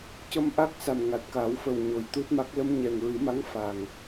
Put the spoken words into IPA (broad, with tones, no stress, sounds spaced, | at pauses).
c ə˧ m ʔ a˦˥ k̚ s a˨˩ m ŋ a˨˩ t̚ k a˨˩˦ w f ə˨˩ w ɲ o˨˩ j t̪ u˦˥ t̚ m a˦˥ k̚ l ə˧ m ɲ ɛ˨˩ ŋ ɹ ɨ˨˩˦ m a˧˥ ŋ f a˨˩ ŋ